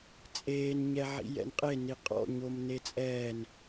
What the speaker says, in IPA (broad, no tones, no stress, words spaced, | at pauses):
t͡sʼeːn ɲɛʕḭjɛ̰nqʼe niqʼɔ̰ ɲomnet͡sʼɛn